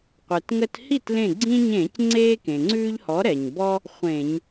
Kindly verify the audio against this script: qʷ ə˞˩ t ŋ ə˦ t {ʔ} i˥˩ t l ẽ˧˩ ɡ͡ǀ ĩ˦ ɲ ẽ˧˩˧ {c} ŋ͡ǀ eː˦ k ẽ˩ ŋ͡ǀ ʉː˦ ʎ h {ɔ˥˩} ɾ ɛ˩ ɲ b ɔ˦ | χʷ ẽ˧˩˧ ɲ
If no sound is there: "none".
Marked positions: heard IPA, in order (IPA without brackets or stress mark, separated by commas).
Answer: h, c, ɔ˨˥